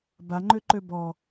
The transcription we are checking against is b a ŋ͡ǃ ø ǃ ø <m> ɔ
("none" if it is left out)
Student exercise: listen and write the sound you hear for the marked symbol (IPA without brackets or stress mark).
b